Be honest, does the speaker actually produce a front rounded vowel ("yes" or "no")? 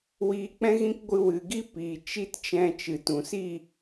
no